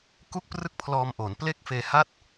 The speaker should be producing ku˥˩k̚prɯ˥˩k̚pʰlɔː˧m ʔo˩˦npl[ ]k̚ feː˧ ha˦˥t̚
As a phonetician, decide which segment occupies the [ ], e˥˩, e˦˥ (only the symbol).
e˥˩